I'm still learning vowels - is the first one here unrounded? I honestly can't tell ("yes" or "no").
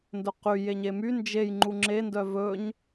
no